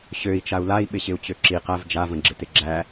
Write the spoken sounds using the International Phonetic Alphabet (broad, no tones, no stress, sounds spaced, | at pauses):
ɕ ø i̯ t͡ʃ a u̯ l a i̯ ɓ ɪ ɕ ɪ u̯ t͡ɕ ø ǁ i q æ v d͡ʒ a v ə̃ ɡ͡ǁ ɪ t ɪ ɡ͡ǁ æ